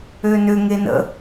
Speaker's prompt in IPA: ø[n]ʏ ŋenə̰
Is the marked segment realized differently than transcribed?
no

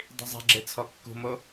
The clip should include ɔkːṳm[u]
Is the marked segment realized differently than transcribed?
yes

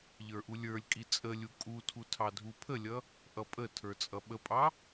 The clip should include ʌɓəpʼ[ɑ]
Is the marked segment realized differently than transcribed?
no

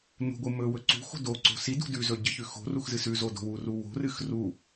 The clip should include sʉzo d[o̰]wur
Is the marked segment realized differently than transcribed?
yes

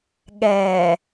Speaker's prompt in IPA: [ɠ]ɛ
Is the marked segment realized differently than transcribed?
no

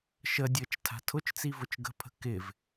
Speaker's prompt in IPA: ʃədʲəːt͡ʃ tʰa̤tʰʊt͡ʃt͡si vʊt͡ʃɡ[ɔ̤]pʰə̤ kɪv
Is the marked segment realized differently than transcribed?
yes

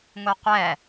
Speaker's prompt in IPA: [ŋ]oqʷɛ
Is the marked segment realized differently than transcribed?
no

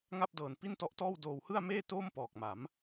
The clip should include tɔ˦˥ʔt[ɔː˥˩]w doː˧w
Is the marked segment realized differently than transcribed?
no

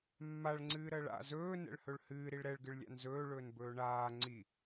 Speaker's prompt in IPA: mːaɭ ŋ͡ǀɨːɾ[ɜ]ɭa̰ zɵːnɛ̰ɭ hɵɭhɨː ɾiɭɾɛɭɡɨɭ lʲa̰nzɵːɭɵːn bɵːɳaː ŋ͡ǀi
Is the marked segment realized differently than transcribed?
no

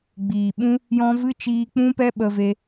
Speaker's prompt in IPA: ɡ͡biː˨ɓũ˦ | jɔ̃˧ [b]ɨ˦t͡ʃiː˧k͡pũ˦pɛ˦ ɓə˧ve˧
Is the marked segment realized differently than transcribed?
yes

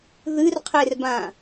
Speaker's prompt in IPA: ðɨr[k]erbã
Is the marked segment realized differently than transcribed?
yes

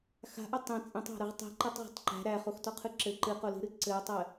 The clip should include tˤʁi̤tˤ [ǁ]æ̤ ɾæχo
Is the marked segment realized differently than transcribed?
yes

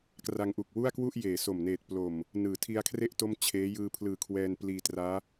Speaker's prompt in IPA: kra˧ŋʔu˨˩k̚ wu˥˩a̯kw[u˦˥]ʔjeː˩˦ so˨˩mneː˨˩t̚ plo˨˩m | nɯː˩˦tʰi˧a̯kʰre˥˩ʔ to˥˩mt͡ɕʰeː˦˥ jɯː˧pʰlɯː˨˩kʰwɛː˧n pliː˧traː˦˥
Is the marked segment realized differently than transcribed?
yes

